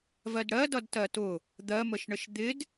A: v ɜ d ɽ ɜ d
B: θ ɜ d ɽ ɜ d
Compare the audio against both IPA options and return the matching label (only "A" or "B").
A